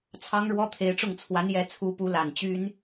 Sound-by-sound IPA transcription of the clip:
t͡sʰɑ˥ŋɻwɔ˥t̪ʰe˧˥ɪ̯ʈ͡ʂʊ˥˩ŋ t͡sʰwa˧˥njɛ˧˥t͡sʰu˧˥pu˧˥ la˨˩nt͡ɕy˥n

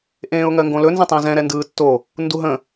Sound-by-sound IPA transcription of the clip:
ʔẽːʊ̯ŋɜŋɡõlɵ nzə̃tˤẽzɛ̃ ɾɛndɯːtːo | nduɦə̃

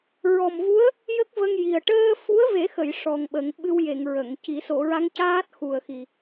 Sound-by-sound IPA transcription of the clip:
ɹɔ˨˩mvu˧˥ə̯ | jə˦˥k̚və˧ŋ ji˨˩ə̯ ʈəː˧fu˧˥ə̯ve˨˩˦xə˨˩˨j ʂɔ˨˩ŋɓə˨˩˦ŋ ɓɨ˧wje˨˩˨ŋ ɹə˨˩˨ŋci˨˩˦ so˨˩˨ɹa˧˥ŋcaː˦˥t̚ xu˨˩ə̯xi˨˩

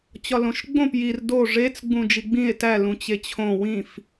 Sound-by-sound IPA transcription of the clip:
t͡ɕɒlõʃɡ͡bõp jir do ʐet͡s ɡ͡bũd͡ʒiɡ͡bĩe̯ tæ lũt͡ɕet͡ɕʰõ wĩf

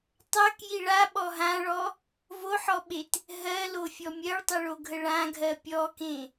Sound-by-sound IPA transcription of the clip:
tˤakji ɭaɓɔ ɦãɭɔ | voħɔɓet | ɦɜlofʲɔ mʲɜɭtˤəɭoɡʱə ɭãɡʱɜ pʲɔkẽ

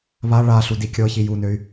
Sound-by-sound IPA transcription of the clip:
βa ɭaɬu dikʲɤçi junøy̯

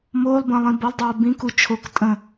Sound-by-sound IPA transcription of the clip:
moːlˠbə̃ːlˠĩ bʌlˠdˤoː bĩku t͡ʃʰok tʼə̃

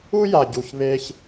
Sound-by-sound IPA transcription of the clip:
u˦ja˨ɟu˨ç βe˧ç

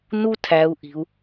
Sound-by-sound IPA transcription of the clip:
nu˥tʰæ˩˧u̯ʔi̤˩u̯

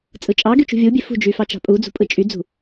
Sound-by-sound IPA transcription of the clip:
t͡sʼɯt͡ʃʼɑɡy t͡ʃṳvʲubʲe fṳd͡ʒy fɑt͡ʃɑ̤pʼud͡zṳ pʼɯt͡ʃʼyd͡zṳ

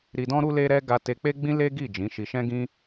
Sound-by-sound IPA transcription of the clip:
ɾi˧dɔ̃˦ ɾu˦le˦ɾɛ˦ ɡa˧te˧k͡pe˦ ɡ͡bĩ˦le˦ɡi˦˨ d͡ʒĩ˨˦ʃi˧ ʃɛ̃˦ɡĩ˦

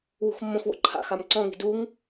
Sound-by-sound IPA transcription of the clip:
wṳxmːõxwo̰ ǃʰa̰xam ǀɔ̃ŋi̤ duŋ

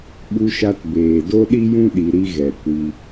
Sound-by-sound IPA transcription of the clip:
ɓu˧ʃa˧tbeː˨ do˦ɗi˦jũ˦ ɗi˧ɾi˦ ɣɛ˨kʷi˧

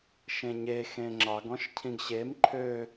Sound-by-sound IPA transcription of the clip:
ʃẽɲe xẽŋ͡ǁɑɡ ɔ̃ʃcʰĩɡɕem ǃʰø

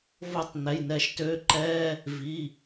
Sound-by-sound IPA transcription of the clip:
vo˥˨tˤn̪ɛ˩˧˩jn̪ɛ˧˩˧ʃ tø˧˥˧ǃɛ˧˥˧ | vi˩˧˩

